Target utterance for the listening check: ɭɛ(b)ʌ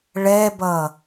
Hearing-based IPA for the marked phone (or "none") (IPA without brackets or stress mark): b